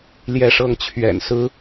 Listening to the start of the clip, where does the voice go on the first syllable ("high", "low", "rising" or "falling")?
falling